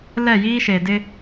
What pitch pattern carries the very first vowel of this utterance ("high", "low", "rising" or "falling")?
falling